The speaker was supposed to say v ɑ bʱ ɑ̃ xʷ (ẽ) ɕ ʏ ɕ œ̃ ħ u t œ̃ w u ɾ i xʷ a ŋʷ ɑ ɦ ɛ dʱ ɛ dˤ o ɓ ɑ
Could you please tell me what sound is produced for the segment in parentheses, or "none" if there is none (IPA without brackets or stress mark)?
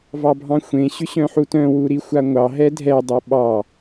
ẽ